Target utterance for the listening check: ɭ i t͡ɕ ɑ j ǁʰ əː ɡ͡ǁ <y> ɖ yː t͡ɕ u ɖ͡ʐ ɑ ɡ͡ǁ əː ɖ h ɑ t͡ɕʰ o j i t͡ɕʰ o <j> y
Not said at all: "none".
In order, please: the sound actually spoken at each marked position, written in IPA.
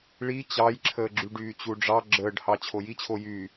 y, j

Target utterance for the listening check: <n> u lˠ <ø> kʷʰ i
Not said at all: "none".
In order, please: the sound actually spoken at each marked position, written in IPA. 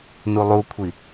n, u

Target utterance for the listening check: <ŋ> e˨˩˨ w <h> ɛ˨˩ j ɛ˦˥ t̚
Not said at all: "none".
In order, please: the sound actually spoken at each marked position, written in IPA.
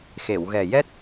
x, ɣ

